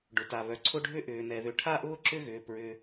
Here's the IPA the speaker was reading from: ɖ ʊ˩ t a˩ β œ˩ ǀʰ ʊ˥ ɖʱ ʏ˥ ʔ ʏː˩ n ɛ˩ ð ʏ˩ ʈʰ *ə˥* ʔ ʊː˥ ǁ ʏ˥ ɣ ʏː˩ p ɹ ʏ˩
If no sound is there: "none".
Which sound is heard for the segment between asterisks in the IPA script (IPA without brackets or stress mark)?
a˥